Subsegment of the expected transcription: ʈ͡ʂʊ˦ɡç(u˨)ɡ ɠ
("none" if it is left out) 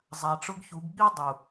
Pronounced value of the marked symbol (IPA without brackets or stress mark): u˨˦